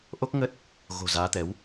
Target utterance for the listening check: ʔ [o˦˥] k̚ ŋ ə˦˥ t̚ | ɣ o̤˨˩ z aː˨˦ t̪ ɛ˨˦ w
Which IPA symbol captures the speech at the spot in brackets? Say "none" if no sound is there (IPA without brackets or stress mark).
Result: o˦˥